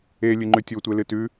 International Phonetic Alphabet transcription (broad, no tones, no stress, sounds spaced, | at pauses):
e lʲ ɨ ŋ͡ǃ ʉ tʲ o tʷ e l ɨ t ʉ